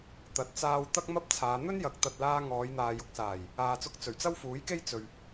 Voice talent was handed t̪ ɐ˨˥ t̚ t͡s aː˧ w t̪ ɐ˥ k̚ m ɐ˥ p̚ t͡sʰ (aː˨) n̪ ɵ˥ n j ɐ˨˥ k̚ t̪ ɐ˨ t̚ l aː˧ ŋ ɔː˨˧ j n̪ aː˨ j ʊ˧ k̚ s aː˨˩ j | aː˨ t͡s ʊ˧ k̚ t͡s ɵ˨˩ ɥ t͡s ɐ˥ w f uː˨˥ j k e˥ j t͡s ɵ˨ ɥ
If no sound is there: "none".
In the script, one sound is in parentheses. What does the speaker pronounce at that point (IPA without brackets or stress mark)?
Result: aː˨˧